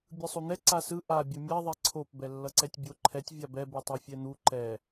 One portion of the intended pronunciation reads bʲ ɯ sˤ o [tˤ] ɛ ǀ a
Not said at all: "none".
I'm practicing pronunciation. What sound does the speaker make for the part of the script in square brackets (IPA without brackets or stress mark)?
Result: n̪